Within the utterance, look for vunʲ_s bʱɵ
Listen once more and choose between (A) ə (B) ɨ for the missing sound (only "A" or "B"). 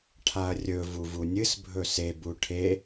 B